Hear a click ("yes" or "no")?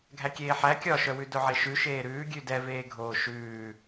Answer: no